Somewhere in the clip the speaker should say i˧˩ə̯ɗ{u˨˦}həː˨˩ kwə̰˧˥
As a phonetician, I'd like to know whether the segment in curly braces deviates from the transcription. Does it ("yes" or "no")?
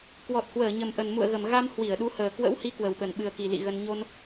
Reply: no